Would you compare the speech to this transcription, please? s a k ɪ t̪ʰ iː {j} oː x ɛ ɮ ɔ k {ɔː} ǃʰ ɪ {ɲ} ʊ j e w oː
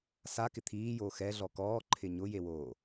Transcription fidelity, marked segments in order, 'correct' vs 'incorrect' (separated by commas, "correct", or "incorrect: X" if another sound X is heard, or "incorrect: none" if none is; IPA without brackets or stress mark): correct, correct, correct